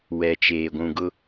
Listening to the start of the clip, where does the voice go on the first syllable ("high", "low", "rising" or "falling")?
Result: low